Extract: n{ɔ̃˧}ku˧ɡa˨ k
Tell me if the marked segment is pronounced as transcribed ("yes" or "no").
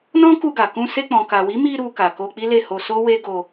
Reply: no